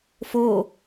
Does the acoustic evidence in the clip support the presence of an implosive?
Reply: no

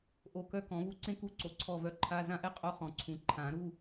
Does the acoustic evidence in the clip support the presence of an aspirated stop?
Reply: yes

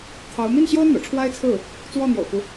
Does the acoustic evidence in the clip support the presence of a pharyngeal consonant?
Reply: no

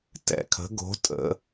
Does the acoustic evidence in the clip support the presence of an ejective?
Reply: yes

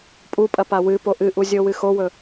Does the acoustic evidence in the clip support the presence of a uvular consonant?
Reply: no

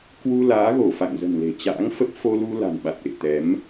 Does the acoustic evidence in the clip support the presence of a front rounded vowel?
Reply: no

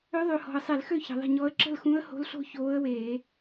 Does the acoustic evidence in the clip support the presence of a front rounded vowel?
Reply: yes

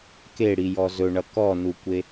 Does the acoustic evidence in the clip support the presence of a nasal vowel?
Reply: no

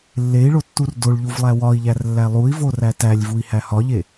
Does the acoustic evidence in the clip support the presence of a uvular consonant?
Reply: no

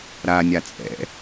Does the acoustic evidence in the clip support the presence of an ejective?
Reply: yes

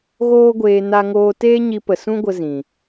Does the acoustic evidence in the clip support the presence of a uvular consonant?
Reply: no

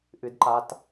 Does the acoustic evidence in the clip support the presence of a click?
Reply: yes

